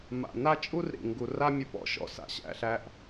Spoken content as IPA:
m a̰˨ n a˦ t͡ʃʼ u˦ r ɾ ḭ˨ ŋ ɡ u˨ r a˦ mʲ ʊ˧ p ɔ̰˦ ʃ ɔ̰˧ s a̰˨ ɕ æ̰˦˨ ɬ æ˦ ʔ

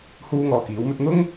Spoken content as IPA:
h uː˥ ŋ ɔː˧ k iː˨˥ w m ɵ˥ t̚ n̪ ʊ˥ ŋ

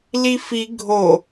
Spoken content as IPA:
l i f i ɡʱ o

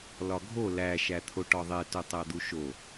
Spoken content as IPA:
l ɒ ɡʱ o l æ ʃ æ t̪ʰ o ʈ ɒ ðˤ e t u tˤ æ d̪ u ʃ o

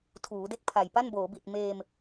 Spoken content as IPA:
tʰ uː˩˦ d e˥˩ k̚ pʰ a˨˩ j p a˥˩ n b oː˩˦ b i˨˩ t̚ m eː˧ m

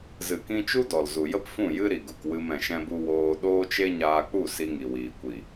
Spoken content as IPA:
z ɨ˨ k ĩ˧ t͡ʃ u˦ d ɔ˨ l z u˨ j ə˦ p f ũ˦˨ j ɨ˦ ɾ i˨ ɡ u˨ k w ɨ˧ m ɛ̃˨ ʃ ɛ̃˦ b u˦ w oː˧ ɗ oː˦ t͡ʃ e˦ ɲ aː˧ k͡p u˦˨ s i˧ ŋ i˨ w iː˨ kʷ i˨

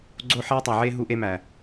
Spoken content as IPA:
ɡ͡ǀ o˦ ħ eː˦ tˤ æ˨ ʕ eː˦ ɦ u˦ ʔ e˦ m æ˨

